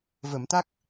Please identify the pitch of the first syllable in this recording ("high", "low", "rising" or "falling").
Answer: low